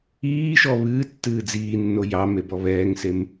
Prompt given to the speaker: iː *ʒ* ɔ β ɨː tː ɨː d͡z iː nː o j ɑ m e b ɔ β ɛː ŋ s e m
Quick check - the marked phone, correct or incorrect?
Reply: incorrect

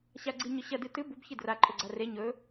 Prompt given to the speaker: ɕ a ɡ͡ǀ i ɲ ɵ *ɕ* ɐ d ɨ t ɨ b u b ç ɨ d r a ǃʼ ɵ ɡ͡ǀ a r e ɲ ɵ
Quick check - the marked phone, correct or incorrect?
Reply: correct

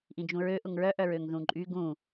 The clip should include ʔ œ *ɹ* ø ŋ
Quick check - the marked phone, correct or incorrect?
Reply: correct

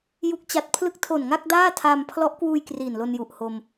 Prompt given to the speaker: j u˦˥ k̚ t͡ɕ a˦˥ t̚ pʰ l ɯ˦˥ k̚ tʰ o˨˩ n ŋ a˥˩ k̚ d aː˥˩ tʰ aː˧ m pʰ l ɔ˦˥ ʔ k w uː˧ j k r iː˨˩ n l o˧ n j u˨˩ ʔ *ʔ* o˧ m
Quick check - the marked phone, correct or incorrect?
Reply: incorrect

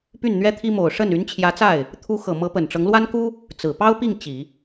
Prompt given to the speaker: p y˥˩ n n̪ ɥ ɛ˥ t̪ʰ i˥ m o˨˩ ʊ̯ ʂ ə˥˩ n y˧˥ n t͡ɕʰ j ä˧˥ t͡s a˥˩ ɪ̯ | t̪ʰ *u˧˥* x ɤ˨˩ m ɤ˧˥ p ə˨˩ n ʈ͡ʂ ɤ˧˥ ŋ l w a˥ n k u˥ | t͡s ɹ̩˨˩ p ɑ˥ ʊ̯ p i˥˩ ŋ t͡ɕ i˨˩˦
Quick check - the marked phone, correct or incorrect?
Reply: correct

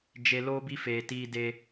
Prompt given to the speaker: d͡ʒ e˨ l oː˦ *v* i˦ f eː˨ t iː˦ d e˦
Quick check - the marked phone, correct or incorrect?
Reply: incorrect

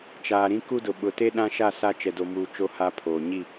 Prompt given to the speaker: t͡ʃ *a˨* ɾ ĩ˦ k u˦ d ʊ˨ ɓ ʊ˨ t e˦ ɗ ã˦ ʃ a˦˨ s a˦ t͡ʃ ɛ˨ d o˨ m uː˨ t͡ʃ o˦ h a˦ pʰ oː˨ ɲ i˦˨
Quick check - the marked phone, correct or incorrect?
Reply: incorrect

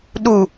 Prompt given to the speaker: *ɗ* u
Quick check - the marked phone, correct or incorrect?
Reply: correct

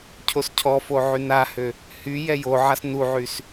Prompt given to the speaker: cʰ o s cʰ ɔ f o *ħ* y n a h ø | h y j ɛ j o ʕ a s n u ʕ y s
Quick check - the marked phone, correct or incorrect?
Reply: incorrect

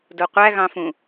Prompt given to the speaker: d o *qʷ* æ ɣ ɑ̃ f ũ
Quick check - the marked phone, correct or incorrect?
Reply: correct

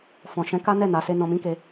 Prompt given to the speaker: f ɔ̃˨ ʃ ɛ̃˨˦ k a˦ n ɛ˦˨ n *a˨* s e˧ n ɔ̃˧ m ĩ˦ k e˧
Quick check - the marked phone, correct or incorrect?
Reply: correct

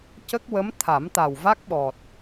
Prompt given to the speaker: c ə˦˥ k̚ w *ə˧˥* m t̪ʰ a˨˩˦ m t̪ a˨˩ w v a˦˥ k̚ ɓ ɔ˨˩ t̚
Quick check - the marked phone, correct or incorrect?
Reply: correct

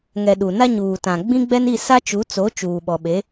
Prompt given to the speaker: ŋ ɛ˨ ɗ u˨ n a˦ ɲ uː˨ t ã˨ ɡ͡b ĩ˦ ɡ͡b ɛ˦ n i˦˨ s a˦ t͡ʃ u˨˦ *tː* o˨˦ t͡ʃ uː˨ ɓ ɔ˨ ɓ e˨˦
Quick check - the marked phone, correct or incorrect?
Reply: incorrect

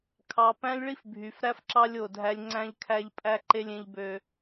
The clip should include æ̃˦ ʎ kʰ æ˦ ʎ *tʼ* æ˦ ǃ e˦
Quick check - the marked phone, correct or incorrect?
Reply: incorrect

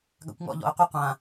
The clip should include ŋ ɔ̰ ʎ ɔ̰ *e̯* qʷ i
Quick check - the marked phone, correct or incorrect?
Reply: correct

